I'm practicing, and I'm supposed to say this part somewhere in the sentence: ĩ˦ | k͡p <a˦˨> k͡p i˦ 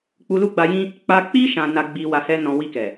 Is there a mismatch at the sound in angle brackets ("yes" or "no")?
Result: yes